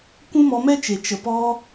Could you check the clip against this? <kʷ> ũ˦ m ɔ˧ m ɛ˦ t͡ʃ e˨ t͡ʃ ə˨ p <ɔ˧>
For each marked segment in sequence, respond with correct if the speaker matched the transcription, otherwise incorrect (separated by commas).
correct, correct